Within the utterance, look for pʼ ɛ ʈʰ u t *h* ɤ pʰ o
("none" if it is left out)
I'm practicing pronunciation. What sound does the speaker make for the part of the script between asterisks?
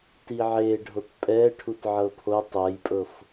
ʕ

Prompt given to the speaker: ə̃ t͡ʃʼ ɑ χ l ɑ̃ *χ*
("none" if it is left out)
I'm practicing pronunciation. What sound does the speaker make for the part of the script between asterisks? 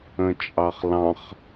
χ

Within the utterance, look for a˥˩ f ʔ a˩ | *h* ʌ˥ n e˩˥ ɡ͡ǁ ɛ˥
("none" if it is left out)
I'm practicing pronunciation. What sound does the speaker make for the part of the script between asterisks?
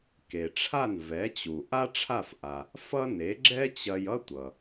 f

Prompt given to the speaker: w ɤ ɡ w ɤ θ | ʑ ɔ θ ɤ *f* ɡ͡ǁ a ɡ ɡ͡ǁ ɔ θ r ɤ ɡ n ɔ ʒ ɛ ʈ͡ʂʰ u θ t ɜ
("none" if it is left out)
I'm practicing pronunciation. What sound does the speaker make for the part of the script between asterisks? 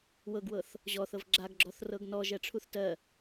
v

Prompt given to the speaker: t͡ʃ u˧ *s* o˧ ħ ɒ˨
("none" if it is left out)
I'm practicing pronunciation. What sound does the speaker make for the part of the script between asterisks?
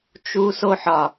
s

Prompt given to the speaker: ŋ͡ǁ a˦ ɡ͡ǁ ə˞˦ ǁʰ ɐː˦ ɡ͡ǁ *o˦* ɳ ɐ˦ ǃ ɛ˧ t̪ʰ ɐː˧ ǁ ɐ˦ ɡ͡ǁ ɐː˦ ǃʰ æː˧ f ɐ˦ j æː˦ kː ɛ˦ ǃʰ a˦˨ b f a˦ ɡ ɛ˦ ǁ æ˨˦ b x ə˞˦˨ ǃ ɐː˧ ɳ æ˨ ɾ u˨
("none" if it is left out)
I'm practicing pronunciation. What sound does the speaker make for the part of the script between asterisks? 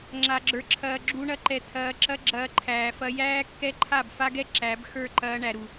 u˦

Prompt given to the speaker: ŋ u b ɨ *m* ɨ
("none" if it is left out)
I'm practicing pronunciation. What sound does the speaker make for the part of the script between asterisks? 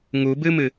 m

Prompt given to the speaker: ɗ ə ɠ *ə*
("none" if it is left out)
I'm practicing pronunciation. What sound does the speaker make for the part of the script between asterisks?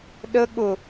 ʊ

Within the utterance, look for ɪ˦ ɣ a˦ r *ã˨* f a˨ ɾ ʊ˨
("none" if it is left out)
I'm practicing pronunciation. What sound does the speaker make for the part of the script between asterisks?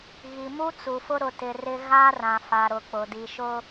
ã˨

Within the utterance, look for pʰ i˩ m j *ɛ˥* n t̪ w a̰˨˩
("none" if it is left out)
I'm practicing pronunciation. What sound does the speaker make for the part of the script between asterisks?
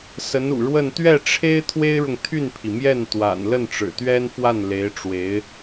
ɛ˥˩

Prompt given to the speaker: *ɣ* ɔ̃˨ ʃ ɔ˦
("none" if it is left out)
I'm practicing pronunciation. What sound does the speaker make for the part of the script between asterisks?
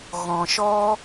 ɣ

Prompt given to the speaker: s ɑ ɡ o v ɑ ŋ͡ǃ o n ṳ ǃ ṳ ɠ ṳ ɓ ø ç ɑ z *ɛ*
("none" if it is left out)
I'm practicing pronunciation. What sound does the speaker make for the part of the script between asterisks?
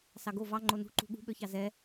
ɛ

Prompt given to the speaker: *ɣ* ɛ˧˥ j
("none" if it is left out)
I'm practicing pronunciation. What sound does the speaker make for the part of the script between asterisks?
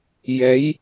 j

